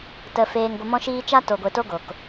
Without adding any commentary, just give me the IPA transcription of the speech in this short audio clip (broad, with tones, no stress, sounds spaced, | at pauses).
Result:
t ə˨ f eː˨ ŋ ɡʷ ə˨ m ɔ̃˧ ʃ iː˧ t͡ʃ a˦ t o˨ ɡʷ e˨ t o˧ ɡ o˨ k